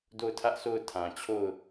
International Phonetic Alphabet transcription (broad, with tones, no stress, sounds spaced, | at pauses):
d o˦˨ ʊ̯ tʰ ä˦ ʔ s o˦˨ ʊ̯ tʰ ã˨ t͡ɕʰ o˦˨ ʊ̯